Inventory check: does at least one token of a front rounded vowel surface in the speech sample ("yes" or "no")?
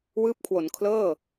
no